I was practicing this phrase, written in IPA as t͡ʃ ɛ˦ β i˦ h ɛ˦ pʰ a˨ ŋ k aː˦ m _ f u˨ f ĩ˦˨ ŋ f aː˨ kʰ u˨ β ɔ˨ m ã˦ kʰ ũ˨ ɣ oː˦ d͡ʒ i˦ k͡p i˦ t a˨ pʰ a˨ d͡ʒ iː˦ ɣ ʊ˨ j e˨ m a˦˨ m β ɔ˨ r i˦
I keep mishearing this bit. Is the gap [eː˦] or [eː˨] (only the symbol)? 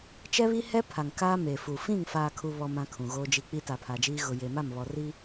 eː˨